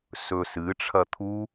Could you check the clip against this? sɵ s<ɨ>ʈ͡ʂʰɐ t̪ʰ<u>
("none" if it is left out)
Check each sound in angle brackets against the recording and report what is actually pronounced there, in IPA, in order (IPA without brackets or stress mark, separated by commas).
ɨ, u